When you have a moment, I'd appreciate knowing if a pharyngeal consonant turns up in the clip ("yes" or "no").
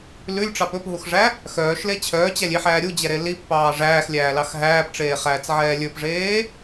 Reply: yes